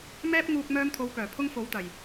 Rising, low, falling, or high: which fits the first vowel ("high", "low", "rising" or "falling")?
high